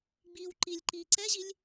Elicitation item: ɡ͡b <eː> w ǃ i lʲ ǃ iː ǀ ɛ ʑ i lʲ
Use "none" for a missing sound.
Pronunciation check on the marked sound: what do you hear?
iː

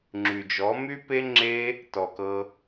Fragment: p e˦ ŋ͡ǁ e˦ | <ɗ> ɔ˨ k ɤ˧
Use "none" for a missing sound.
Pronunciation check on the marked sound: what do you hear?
t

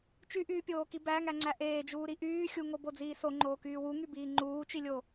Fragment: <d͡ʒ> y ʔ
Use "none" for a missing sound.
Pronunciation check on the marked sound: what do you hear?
t͡ʃ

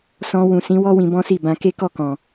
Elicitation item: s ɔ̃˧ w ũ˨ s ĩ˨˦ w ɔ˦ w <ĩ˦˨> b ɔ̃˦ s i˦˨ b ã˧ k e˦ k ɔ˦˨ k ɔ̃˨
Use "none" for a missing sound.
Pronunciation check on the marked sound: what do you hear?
ĩ˧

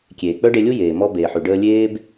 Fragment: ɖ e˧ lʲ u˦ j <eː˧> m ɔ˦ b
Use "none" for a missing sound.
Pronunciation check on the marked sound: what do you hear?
eː˨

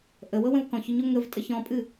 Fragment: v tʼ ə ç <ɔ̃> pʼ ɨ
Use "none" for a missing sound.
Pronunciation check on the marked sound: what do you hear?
ɔ̃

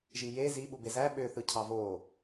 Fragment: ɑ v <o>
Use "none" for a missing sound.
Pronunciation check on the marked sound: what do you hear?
o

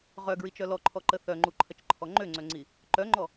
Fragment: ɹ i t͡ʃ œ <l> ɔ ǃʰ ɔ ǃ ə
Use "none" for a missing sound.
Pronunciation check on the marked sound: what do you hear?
l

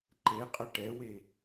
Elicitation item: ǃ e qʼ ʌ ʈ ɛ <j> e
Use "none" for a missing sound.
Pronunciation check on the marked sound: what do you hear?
w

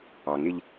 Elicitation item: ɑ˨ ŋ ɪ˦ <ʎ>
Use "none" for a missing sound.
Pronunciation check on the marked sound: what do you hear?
ʎ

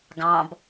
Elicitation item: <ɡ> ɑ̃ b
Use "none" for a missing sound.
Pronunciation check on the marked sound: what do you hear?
ɡ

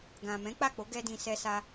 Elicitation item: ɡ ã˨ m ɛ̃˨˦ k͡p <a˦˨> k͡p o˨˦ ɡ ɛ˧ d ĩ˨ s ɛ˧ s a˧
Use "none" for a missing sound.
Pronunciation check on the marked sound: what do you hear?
a˦˨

